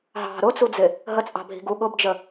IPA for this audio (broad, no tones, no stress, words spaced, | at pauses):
ɦɑ̤ ɾʊt͡sud͡zɪ | ɦət͡sʼɑ̤bʱi̤ ɡu ɠʊbd͡ʒə